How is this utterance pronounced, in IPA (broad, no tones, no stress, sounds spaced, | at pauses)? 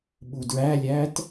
ɓ u d ɹ æ lʲ æ t